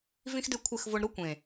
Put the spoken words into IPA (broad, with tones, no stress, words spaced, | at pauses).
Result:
vĩ˦xdɪ˦˨kʷʰɪ˦˨xvo˧ɳ ɾʊ˧kʷẽ˨